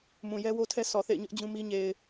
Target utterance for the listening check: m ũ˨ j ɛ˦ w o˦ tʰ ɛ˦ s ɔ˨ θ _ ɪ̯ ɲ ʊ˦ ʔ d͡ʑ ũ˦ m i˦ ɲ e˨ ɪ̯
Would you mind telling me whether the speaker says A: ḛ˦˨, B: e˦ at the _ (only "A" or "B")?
A